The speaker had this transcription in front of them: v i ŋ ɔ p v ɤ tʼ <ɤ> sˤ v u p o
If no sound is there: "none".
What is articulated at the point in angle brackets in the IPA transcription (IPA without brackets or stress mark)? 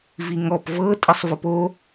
ɯ